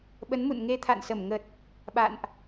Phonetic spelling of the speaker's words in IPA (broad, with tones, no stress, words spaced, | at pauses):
ɓə˨˦nmṵ˧˨n ŋe˧t̪ʰa̰˧˨nsə˧˩mŋə˨˩t̚ | ɓa̰˧˨nʔ